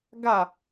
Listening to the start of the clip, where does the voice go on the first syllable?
falling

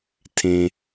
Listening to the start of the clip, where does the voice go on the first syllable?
low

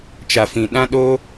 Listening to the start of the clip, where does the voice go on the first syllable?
low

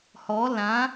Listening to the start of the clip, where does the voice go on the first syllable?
rising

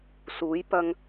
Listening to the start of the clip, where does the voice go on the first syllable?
rising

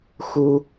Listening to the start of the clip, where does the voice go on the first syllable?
high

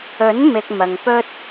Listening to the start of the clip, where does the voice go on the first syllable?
rising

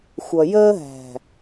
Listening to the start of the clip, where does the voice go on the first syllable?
low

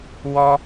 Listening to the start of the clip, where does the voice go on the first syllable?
high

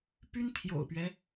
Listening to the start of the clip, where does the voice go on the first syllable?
high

